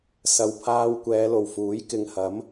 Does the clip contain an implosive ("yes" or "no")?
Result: no